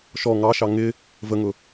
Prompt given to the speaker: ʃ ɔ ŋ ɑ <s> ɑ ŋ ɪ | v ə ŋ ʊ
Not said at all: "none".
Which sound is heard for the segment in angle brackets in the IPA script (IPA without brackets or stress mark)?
ʃ